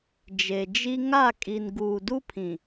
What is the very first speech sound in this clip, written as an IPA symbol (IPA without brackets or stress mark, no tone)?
d͡ʒ